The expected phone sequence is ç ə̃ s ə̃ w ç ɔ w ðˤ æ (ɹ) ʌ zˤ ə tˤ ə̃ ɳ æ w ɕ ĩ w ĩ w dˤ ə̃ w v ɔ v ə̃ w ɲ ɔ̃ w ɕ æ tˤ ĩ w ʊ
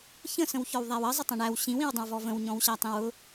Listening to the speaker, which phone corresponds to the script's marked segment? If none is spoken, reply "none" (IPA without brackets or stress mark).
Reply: w